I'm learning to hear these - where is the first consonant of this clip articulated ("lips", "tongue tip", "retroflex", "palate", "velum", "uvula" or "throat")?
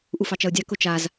throat